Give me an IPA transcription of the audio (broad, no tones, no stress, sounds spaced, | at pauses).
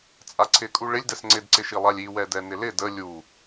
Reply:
t͡sʼ a ǀʰ ɪ kʼ u ɭ ɪ lʲ d ɛ s ŋ͡ǀ ɪ d ǀ ɪ ʃ i lˠ a lʲ i w ɛ d ɛ n ɪ l ɪ d ə lʲ u